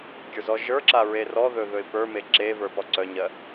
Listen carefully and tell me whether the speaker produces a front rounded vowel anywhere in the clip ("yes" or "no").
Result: yes